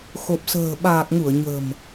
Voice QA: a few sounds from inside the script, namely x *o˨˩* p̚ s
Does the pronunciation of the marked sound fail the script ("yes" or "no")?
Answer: no